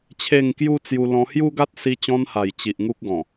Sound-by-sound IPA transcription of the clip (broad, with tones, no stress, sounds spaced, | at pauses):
t͡ɕʰ e˥˧ ŋ k j u˦ t͡s j u˧ l ɔ̃˧ h j u˦ ɡ a˦ t̚ s i˧ t͡ɕ ɔ̃˧ n h a˨˩ j t͡ɕ i˨ ʔ ŋ u˦ k̚ ɡ ɔ̃˨˩